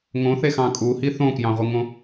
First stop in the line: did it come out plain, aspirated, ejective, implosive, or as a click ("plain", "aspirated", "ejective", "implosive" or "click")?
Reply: ejective